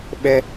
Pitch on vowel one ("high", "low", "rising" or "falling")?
high